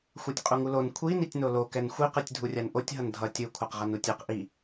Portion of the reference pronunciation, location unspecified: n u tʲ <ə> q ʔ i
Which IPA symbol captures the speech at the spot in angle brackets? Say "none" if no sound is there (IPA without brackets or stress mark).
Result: ɛ